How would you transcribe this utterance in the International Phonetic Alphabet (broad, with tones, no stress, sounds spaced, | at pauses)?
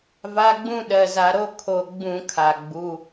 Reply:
v a˧˥˧ ɡ͡b ũ˥˧ ɗ ɜ˩˧˩ z a˧˩˧ ɾ o˥˧ kʰ o˧˩ ɡ͡b ũ˧˩˧ kʰ a˩ ɡ͡b u˩˧˩